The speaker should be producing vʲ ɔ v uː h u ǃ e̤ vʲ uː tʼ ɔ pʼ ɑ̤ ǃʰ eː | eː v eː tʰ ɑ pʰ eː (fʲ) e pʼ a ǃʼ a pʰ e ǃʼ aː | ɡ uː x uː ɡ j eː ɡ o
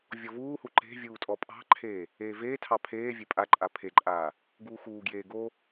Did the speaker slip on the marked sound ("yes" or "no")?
yes